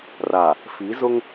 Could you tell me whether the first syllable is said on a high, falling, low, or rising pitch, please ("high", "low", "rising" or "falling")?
low